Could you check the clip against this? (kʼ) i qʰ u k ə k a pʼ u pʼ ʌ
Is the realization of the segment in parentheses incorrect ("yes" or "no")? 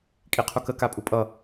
no